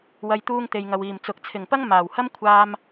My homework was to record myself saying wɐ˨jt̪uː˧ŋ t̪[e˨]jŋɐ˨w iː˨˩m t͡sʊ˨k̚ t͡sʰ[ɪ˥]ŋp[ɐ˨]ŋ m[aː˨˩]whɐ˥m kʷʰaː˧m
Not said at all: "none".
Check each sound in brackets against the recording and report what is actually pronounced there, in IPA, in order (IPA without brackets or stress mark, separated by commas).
e˨, ɪ˨˩, ɐ˥, aː˨˩